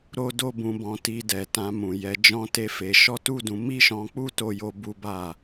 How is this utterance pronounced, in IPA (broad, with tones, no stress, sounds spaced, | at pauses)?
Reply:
ɾ o˦ d o˦ b ũ˧ b ɔ̃˧ t i˧ d ɛ˨ t ã˧ m ũ˨ j ɛ˧ d͡ʒ ɔ̃˦ t e˦ f e˧ ʃ ɔ˦ t u˦ d ũ˧ m i˦ ʃ ɔ̃˧ k͡p u˦ t o˦ j o˦ b u˦ b a˦˨